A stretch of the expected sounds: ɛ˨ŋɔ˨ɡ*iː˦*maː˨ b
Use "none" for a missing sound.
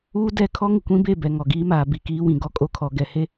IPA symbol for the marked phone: iː˦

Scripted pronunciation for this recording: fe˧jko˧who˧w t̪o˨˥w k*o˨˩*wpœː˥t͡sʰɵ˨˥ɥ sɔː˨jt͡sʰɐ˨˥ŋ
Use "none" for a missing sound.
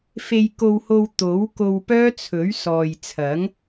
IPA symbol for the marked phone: o˧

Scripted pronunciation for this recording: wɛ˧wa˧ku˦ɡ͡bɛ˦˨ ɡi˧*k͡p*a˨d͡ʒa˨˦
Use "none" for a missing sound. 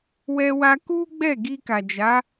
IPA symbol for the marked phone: k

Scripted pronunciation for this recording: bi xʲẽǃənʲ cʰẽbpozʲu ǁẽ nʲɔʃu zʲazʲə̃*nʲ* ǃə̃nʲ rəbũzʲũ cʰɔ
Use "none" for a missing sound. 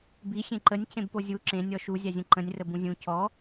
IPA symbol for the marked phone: none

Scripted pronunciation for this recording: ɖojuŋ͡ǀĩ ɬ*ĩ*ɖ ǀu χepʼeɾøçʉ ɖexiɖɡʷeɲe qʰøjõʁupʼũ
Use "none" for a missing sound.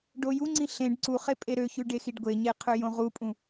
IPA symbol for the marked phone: ẽ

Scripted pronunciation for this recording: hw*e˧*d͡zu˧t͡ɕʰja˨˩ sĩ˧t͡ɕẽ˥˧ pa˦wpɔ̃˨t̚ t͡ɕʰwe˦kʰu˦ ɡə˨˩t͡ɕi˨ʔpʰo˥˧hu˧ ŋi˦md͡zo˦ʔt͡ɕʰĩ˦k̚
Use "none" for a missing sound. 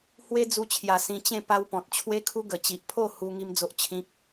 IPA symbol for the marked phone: e˦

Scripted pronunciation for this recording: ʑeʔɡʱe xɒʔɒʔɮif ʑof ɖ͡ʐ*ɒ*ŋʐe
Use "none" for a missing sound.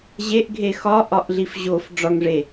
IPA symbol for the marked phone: ɒ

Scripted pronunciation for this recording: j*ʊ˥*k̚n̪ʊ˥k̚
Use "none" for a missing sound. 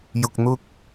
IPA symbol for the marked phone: ʊ˧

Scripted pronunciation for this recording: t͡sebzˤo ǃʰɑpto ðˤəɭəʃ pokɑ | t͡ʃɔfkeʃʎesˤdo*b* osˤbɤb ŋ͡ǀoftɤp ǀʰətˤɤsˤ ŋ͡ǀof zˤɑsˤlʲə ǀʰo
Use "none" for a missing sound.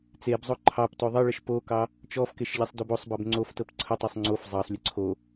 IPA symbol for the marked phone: b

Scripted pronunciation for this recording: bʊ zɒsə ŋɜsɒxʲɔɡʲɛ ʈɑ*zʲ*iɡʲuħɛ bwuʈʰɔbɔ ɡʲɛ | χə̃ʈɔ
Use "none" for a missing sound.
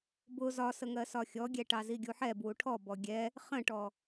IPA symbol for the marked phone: z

